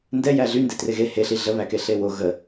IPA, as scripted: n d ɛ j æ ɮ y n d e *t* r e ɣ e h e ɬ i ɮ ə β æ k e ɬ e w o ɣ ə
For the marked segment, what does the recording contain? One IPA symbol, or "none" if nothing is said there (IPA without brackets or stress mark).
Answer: t